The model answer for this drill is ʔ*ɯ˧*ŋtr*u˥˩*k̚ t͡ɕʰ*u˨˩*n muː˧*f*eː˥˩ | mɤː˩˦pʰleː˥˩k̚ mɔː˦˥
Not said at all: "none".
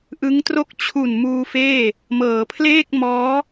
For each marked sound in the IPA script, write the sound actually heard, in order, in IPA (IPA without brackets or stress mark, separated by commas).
ɯ˦˥, o˥˩, u˨˩, f